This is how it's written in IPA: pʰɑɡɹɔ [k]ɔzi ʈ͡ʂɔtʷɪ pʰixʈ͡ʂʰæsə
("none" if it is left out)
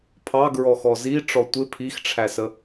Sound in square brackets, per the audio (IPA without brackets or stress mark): x